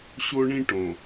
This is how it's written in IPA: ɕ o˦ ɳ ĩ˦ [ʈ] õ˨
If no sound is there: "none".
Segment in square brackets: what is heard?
ʈ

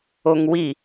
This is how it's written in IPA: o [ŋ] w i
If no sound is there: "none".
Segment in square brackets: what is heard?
ŋ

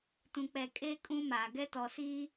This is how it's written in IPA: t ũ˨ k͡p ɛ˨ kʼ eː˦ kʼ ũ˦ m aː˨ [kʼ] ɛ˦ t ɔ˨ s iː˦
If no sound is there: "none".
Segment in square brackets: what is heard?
ɡ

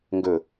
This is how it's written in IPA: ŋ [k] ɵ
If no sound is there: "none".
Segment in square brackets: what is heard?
ɡ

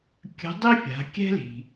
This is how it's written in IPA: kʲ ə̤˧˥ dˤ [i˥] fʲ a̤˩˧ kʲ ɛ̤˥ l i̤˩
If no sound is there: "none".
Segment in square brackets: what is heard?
i˥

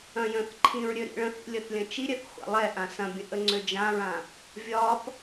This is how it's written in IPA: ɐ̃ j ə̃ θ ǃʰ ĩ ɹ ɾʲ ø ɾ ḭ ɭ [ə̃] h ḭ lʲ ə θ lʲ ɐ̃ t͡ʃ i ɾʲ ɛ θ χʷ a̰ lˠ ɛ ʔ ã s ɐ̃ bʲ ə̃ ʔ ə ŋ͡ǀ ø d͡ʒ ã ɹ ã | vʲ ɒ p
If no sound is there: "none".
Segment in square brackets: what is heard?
ə̃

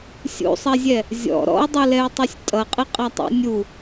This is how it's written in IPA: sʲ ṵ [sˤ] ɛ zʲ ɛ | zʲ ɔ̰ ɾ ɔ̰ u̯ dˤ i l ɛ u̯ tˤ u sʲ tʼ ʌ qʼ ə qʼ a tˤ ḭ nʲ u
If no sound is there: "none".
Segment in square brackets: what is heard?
sˤ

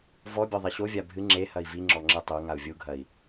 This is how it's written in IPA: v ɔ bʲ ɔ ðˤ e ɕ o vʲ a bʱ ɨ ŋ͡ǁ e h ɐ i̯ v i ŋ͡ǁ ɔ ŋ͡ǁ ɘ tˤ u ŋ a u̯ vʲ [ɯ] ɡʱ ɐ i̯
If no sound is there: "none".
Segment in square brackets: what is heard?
u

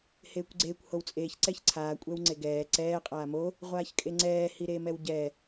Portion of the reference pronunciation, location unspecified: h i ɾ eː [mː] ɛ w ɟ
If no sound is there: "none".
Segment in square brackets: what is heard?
m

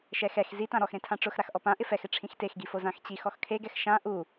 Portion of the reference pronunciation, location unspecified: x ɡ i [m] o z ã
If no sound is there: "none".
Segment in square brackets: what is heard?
f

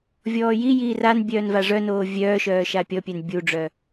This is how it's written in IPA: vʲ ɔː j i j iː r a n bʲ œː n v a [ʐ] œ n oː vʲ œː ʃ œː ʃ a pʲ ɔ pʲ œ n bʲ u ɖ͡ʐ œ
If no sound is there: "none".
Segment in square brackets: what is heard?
ʐ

